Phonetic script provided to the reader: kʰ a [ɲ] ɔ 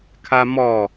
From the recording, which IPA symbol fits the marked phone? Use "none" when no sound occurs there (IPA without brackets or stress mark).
m